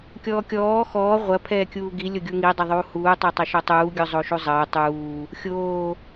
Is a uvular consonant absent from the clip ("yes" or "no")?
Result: no